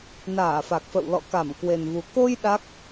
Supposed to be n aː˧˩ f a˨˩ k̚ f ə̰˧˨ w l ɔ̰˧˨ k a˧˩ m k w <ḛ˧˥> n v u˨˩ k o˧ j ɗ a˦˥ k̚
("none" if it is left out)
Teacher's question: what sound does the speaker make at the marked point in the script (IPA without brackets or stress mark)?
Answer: e˨˩